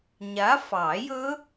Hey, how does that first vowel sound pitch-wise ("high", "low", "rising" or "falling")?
rising